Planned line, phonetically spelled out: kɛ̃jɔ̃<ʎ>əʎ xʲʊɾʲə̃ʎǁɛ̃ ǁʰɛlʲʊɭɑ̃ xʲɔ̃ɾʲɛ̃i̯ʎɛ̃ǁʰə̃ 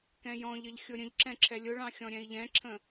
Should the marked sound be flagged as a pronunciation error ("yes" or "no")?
no